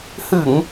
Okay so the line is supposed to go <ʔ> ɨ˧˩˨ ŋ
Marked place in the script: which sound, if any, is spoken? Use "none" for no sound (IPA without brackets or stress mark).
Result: h